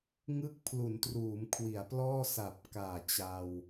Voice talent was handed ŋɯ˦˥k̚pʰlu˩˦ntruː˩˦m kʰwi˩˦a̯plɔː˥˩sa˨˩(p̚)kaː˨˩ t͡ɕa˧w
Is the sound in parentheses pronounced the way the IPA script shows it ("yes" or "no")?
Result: yes